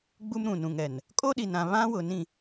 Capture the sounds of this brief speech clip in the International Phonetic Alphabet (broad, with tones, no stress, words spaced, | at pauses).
ɡ͡bu˦mɾũ˨nũ˨ŋɛ˨n | kʼo˦ɗi˨nã˨ βã˦wʊ˨nĩ˦˨